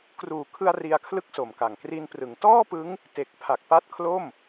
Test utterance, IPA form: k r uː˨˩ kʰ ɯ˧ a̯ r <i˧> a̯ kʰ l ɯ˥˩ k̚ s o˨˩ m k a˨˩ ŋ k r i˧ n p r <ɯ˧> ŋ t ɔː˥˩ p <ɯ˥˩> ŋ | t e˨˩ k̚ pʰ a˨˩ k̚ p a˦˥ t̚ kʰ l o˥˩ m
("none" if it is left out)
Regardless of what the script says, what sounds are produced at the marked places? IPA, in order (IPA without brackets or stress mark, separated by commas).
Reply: i˧, ɯ˩˦, ɯ˦˥